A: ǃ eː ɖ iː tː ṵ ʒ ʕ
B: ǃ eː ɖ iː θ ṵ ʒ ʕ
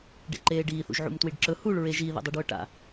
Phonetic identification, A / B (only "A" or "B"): B